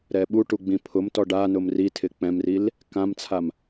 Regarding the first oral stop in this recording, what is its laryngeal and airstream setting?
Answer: implosive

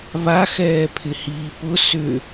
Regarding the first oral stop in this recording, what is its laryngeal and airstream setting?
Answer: aspirated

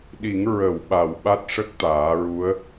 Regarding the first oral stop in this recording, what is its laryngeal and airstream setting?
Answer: implosive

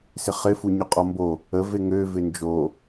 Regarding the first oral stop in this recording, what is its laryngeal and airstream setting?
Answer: ejective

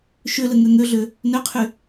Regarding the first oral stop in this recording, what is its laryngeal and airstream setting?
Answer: aspirated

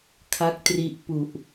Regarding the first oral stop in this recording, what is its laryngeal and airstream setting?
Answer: aspirated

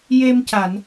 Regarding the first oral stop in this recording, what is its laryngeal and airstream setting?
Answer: plain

